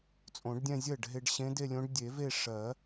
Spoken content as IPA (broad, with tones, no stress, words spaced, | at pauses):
t͡sʼõ˨˩˦ɖdʲɛ̃˥˧zʲɜ˥˩ɖɦe˧ɖ ɕẽ˧˥de˥˧lʲõ˧˥ɖ dʲe˨˩˦ve˥˧ ʂɜ˨˩˦